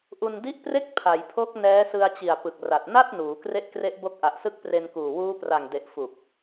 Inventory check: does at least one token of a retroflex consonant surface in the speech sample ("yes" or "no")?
no